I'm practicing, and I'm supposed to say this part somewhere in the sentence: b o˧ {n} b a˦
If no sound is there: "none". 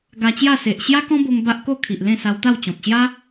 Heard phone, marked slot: ŋ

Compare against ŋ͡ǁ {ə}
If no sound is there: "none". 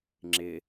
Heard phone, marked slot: ɪ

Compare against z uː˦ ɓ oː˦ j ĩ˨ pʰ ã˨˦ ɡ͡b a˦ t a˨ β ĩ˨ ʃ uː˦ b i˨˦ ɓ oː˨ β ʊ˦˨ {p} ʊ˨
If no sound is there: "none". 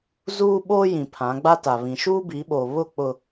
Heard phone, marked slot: k͡p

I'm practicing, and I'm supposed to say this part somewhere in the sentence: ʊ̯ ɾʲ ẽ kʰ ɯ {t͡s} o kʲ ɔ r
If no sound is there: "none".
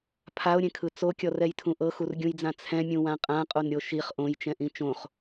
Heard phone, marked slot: t͡s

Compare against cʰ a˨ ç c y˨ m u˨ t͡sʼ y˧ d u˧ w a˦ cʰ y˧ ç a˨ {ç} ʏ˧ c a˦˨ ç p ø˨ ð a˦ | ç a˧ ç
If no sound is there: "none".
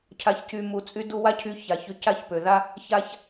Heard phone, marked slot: ç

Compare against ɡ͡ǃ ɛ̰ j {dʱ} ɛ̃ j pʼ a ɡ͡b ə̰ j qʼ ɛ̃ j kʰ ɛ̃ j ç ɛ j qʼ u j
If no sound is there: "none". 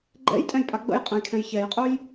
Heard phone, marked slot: tʼ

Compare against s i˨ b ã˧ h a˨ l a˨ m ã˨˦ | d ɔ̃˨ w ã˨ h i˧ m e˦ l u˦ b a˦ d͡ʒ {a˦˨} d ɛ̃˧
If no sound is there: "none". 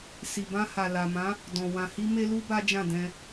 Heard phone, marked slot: ã˦˨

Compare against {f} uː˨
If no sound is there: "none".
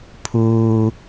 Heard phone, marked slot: pʰ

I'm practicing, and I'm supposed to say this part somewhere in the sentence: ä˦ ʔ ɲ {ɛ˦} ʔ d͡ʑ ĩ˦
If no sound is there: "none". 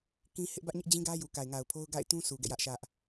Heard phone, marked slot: ɪ˦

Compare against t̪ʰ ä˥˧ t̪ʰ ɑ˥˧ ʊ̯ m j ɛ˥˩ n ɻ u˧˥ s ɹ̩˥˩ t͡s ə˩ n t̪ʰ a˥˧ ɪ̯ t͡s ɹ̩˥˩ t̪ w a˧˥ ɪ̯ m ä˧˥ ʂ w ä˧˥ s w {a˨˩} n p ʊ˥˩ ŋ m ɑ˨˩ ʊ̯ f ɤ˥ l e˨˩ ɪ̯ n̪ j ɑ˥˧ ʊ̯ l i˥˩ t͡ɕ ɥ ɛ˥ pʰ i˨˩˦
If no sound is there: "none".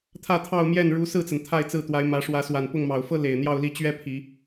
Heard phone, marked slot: a˨˩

